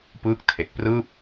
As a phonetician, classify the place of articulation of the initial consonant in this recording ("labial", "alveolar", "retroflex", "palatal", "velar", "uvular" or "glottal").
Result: labial